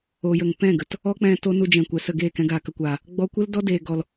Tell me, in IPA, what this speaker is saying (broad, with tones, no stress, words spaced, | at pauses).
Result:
o˨jə˨ŋ pɛ̃˦˨ɡə˨t | ɔ˦k͡pɛ̃˧ to˦nu˧ d͡ʒɛ̃˨ kʷɛ˨sə˦˨ɡeː˦˨kɛ̃˧ ɡaː˨kə˨kʷaː˨ | ɡ͡bɔ˧kʷə˦ldɔ˦ deː˧ɡɔ˧l